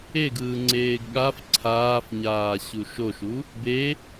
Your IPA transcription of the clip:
eɡɯː ŋ͡ǀeːɡɠaf ǀʰaːfɲaː ɕuʃoʃu | be

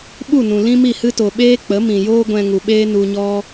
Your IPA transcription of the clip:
ɓu˦˨nũ˨lĩ˦mi˦˨ hɨ˦to˨ɓeː˦ k͡pə˨˦mĩ˨joː˦ ɡʷɛ̃˧ŋu˨ɓeː˦ nu˧ɲɔ˦

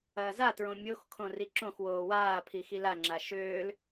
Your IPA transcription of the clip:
ɐːzatɹõ mʲoxkʰõ riǁõxwoː waːpʰi xilaŋ͡ǁa ʃøːl

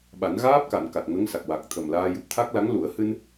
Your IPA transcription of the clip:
ɓa˨˩˦n ɣaː˦˥p̚ka˨˩˨n ka˨˩t̚ŋə˧˥ŋsa˨˩k̚ wa˨˩k̚t̪ʰə˨˩mlaː˧ jɨ˨˩p̚t̪ʰa˦˥k̚la˧˥ŋ lu˨˩˦ə̯hɨ˧n

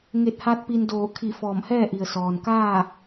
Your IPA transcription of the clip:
ŋe˧˩t̚ha˧t̚ pi˧ndoː˧˩ kʰi˧˩ fɔː˧˩mhɛː˥˨ʔi˩ə̯ sɔː˩nkaː˥˨

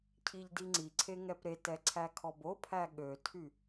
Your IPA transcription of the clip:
cʰiʎdiŋ͡ǀiǀʰe ŋɛpɾetɛ ǀʰækʰɔbopʰæ ɠøtʰy

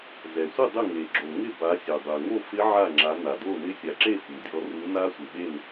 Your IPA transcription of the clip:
zɛ˩sʷɪ˥˨ dˤɪ˥˨ ŋe˩ɡ͡ǁo˩ŋɪ˥˨ ba˨˦sʲɛ˩ dˤɛ˩ŋo˥˨ fɪ˦˥ ʕa˥˨ŋ͡ǁa˨˦ na˩do˥˨nɪ˦˥ sʲa˩ǁe˥˨ fu˩dʲɔ˨˦ ru˨˦na˦˥sʷɪ˩ɓe˥˨n

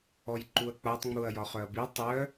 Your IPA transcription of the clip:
ɔjǃuɐ̯k͡patˤ ŋ͡muɐ̯jɒχœɐ̯bi tˤœ

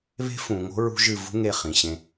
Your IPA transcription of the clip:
βe̤˦fũ˨ŋo̤˦ ɹṳ˦ʒɨ˦˨ vṳ˦ ŋe˦˨χĩ˨ɕẽ˧

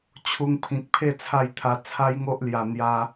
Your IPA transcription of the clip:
t͡ɕʰu˧ŋpʰĩ˨k̚pʰe˥˧ t͡sʰa˥˧jt̪ʰa˧ t͡sʰa˦jŋo˦ʔlja˨˩ n̪ja˧

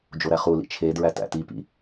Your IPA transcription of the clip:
d͡ʒoɾæχulḭ t͡ʃʰe dɹætæ̰tipḭ

